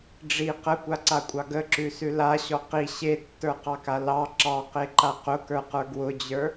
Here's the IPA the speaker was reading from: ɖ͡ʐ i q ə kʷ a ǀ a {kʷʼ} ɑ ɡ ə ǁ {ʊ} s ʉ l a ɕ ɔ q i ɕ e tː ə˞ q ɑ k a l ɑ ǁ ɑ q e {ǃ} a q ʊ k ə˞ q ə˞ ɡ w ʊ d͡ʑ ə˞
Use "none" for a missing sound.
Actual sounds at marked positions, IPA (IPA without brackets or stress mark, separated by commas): kʷʼ, ʉ, ǃ